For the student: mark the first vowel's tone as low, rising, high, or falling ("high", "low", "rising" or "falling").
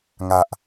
low